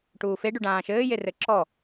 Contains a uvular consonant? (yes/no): no